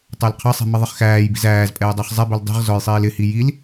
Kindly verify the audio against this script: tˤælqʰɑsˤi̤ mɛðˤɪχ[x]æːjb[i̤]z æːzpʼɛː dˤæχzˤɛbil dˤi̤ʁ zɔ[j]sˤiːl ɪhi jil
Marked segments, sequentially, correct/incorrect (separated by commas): correct, correct, correct